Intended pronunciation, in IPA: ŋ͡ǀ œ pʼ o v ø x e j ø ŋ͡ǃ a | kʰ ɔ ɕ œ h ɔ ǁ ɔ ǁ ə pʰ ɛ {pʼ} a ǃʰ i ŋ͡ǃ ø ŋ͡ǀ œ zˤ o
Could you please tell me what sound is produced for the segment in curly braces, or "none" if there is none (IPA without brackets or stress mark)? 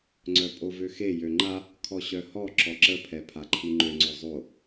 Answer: pʰ